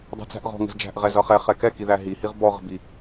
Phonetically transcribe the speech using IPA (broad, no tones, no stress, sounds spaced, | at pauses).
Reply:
dˤ ɛ̤ t͡s æ̤ ʔ ʁ ɔ̤ ŋ ə̤ z d͡ʒ æ̤ ʔ ʁ ɛ z ʌ χ ɛ χ ɛ k ɛ k i ð æ ɦ i h i ʁ b ɔ ʁ ə̤ b i